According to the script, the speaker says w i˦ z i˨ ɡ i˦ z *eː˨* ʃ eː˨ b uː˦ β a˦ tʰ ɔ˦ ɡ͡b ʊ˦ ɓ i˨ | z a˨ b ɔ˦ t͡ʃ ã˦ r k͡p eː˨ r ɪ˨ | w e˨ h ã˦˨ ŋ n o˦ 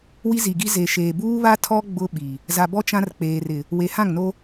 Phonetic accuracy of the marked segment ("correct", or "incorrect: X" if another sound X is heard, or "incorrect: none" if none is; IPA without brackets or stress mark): incorrect: e˨